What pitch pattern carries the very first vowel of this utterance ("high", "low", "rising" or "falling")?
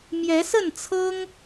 rising